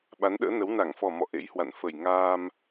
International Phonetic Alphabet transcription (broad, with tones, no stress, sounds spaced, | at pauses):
ɓ a˨˦ n ɗ ə̰ː˧˥ n ə˨˦ w n a˧˩ ŋ f ɔ˨˩ m ɔ̰˧˨ ʔ ḛ˧˥ j h w a̰˧˨ n f ə˨˩ j ŋ aː˧ m